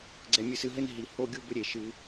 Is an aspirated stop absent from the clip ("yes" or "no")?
yes